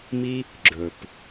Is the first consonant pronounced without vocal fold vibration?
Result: no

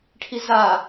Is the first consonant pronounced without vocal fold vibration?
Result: yes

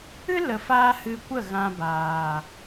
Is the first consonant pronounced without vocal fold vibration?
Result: no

